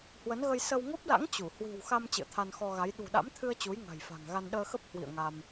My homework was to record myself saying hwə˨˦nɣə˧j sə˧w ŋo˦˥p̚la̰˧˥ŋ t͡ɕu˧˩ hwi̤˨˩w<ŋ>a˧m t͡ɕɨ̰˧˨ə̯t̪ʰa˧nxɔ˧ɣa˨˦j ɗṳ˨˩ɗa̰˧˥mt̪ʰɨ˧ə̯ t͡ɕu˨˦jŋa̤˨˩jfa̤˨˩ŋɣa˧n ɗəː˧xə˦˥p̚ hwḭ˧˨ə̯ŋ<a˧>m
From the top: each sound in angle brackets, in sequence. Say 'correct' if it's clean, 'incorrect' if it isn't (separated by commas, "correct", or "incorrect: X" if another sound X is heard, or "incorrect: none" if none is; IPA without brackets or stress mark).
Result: incorrect: x, correct